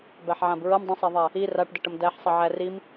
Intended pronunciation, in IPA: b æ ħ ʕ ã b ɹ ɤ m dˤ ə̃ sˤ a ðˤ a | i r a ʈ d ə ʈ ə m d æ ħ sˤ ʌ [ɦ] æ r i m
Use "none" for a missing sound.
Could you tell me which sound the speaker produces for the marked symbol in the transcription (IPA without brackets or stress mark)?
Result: ʕ